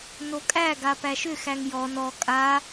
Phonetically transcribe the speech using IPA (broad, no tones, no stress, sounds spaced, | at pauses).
n o kʼ æ ɡ a p æ ʃ ʏ x æ ŋ j ɔ n ɔ kʼ a